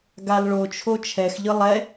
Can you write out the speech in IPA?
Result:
ɡ a l ɭ o t͡ʃʰ o t͡ʃʰ ɛ x ʎ ɯ lˠ ɛ

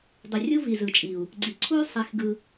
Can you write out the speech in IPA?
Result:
dˤ u˨ rʲ u˦ v i˨ z ɯ˨ t͡ʃʼ i˨ u̯ | ɡ͡ǀ i˨ ǀʰ u˦ y̯ sˤ i˧ x ɡ ɯ˧

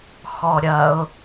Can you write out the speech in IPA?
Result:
x ɔ ɾʲ ɐ ʊ̯

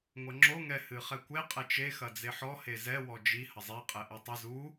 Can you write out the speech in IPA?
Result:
ŋʷ ɐ ŋ͡ǁ o ŋ ɛ h ɨ χ ɛ kʷ e qʼ ɛ t͡ʃ e x ɐ d͡z e ħ ɔ h e z ɛ w ɔ d͡ʒ i h ɐ zˤ e qʼ ɛ ʔ e tˤ ɨ z u

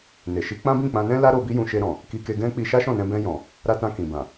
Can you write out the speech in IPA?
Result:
n e˨ ʃ i˨˦ k͡p ã˦ b ĩ˦˨ k͡p ã˧ n ɛ̃˦ l a˦ ɾ o˧ b i˦ j ũ˧ ʃ e˧ ɾ ɔ̃˨ | k i˧ k e˧ ɡ ɛ̃˦ k͡p i˧ ʃ a˦ ʃ ɔ̃˦˨ n ɛ̃˧ b ɛ̃˧ j ɔ̃˨ | ɾ a˧ t ã˧ k ĩ˨ b ã˨

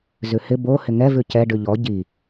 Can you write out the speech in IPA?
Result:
z ʉ h ɪ b o h ɪ ŋ ɛ v ʉ c ɛ ɖ ʉ ʎ ɔ ɟ i

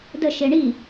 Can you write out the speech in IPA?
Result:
d ə ʃ e ɳ i

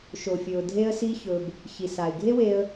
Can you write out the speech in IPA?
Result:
ʃ o˩ fʲ ɵ˩ ʊ̯ dʱ e˧ ə̯ s i˧ ç ɵ˩ b | ç i˩ s a˩ ɪ̯ ɡʱ e˥ w e˧ ə̯

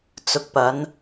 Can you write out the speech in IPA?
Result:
t͡s ʊ˧ k̚ p ɐ˨˥ n

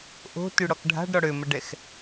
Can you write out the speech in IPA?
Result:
ʔ o̤ t y ɽ ɔ k ɖʱ a̤ ɖ ɾ ɔ ɽ ø m ə ɖ ɛ x

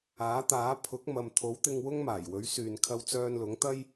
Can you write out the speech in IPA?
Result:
aː˨˥ t̪ aː˨˥ pʰ ʊ˨˥ k̚ m ɐ˨ m t̪ʰ o˨˥ w t̪ ɪ˧ ŋ w ʊ˥ ŋ m aː˨˩ j w ɵ˨˥ ɥ s yː˨ n kʰ ɐ˧ w t͡s œː˧ n l ʊ˨˥ ŋ t̪ ɐ˥ j

